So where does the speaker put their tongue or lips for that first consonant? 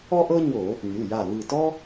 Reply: throat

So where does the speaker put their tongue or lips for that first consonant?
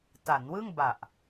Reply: tongue tip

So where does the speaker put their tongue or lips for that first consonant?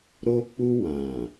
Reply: tongue tip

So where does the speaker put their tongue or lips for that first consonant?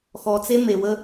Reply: velum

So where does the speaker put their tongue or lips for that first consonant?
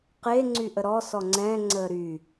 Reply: uvula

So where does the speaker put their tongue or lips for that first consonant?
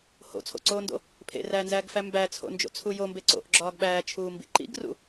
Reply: throat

